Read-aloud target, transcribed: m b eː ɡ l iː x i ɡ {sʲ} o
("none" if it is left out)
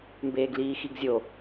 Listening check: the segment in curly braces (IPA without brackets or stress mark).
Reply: zʲ